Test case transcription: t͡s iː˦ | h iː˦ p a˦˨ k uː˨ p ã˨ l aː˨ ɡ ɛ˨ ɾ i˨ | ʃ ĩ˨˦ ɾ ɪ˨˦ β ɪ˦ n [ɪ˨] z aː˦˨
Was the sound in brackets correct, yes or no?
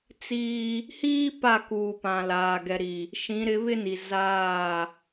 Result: no